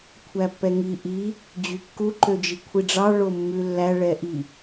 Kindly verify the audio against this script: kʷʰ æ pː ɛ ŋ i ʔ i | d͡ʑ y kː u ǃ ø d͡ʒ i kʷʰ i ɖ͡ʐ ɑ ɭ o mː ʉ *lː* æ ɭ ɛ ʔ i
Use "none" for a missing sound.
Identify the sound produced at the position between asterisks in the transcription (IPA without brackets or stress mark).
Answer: lː